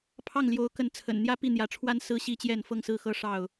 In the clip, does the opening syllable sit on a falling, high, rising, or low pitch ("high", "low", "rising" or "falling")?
falling